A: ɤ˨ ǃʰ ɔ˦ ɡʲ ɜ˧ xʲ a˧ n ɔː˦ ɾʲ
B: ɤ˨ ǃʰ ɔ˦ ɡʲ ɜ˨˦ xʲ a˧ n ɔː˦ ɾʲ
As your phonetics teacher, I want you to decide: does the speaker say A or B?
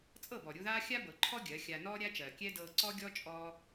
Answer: B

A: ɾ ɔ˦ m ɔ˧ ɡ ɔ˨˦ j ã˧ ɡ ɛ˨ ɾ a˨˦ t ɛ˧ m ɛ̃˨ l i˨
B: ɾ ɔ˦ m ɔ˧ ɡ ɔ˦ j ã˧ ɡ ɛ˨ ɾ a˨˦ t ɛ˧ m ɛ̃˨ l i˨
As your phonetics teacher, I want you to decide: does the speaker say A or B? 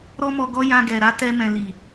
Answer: B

